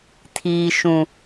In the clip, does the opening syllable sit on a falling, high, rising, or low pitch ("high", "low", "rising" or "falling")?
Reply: low